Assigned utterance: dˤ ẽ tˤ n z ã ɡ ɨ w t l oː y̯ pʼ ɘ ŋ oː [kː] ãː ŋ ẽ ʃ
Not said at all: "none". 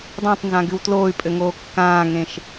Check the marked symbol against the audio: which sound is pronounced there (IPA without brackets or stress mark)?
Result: kː